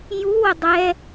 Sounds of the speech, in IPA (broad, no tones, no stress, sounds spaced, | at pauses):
j u w ə dˤ ɛ